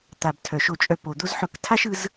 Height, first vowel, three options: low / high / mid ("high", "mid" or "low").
low